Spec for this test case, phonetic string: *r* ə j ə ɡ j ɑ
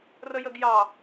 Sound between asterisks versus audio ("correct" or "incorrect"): correct